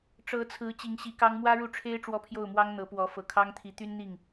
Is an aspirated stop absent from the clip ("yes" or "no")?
no